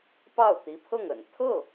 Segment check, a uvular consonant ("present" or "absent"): absent